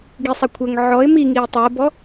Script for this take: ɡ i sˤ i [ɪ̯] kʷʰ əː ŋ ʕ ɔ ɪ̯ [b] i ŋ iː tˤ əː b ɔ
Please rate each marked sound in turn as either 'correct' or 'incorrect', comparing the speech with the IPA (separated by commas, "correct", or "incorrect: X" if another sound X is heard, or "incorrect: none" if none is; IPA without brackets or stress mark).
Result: incorrect: none, incorrect: m